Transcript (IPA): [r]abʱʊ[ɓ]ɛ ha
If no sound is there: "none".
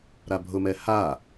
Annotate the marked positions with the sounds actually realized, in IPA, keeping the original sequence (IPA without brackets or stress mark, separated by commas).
ɾ, m